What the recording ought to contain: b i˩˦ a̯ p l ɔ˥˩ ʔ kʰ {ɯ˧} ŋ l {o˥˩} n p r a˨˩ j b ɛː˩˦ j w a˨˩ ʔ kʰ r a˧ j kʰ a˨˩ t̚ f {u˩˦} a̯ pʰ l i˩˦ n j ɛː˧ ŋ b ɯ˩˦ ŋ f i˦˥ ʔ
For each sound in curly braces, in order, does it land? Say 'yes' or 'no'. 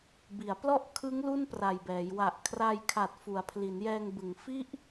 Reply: no, no, yes

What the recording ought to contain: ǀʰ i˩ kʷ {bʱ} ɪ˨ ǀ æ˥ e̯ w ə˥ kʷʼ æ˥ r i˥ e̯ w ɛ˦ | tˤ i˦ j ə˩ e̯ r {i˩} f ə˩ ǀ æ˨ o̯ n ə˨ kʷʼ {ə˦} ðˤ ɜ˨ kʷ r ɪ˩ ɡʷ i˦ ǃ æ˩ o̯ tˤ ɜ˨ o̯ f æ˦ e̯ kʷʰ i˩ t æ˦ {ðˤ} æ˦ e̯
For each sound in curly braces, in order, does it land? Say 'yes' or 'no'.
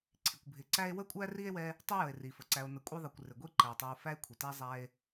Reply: yes, yes, no, no

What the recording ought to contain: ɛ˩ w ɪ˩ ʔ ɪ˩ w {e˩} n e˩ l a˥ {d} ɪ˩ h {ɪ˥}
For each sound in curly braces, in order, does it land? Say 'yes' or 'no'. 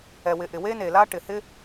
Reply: no, no, yes

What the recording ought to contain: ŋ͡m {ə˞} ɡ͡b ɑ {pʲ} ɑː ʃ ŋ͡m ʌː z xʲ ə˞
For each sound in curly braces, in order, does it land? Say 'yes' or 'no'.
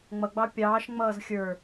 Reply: no, yes

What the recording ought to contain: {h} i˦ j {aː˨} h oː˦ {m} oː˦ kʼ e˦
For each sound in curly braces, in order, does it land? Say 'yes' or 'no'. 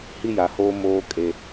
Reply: yes, no, yes

